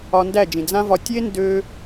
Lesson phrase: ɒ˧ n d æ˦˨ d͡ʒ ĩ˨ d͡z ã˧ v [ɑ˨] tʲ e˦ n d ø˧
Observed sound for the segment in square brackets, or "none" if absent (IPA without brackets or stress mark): ɒ˨